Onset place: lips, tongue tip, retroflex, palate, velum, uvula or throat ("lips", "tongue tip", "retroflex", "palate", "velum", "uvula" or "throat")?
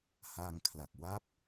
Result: throat